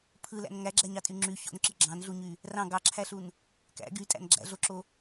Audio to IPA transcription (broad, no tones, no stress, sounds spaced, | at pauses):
pʰ ɯ l æ̰ n ŋ æ ɡ͡ǁ æ ɲ ɑ tʼ y ŋ͡ǁ y ç o̰ n ǁ ɯ ɡ͡ǁ ɑ̃ n ɮ u ɲ y | r ɑ̃ ɡ ɑ ǁʰ æ ɬ u n | k æ̰ ɡ y tʼ æ̰ n ɡ͡ǁ æ̰ ɮ o ǁ o